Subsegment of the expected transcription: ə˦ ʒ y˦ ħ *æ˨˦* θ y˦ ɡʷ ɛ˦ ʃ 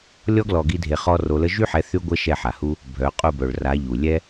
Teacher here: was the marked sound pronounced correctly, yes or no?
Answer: no